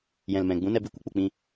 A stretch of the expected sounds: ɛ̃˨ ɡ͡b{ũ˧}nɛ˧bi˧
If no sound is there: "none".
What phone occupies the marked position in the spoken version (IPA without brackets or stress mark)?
ũ˨˦